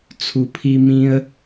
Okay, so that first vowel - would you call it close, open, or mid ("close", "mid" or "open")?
close